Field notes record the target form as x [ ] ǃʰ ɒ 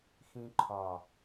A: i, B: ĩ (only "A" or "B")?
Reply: B